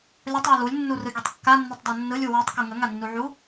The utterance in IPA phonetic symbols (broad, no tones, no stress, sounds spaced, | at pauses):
lʲ ʌ tˤ w ə l u lʲ nː u r ɯ ɡʲ ɯ tˤ kː a nː u tˤ dˤ a nː ɯ lʲ u w ə tˤ k u ŋ ə ŋ a nː u ʕ u